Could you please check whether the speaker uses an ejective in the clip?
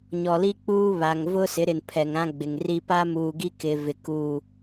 no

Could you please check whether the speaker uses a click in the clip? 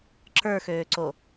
yes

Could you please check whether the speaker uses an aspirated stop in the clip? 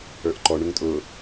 no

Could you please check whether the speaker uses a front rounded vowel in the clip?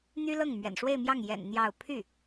yes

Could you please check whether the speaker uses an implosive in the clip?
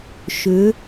no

